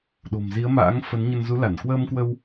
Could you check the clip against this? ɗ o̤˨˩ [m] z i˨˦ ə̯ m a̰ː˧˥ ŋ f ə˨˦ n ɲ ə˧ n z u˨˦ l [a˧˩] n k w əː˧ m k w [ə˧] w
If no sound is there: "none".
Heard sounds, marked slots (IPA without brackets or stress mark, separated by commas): m, a˧˩, ə˧